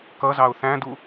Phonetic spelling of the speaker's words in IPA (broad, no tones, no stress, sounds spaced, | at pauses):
k ʌ z ɑ ʊ̯ θ æ̃ d u